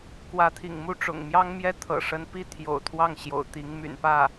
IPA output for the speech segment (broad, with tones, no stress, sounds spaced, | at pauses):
k w ä˧˥ t̪ʰ ḭ˨˩ ŋ m u˥˩ ʈ͡ʂ ʊ̰˨˩ ŋ m j ɑ˥ ŋ m j ɛ˥˩ t̪ʰ ɤ̰˨˩ ʂ ə˧˥ n p i˥ t̪ʰ j o̰˨˩ ʊ̯ t̪ʰ w ɑ˥˩ ŋ ɕ j o̰˨˩ ʊ̯ t̪ i˧˥ ŋ m y̰˨˩ n p ä˥˩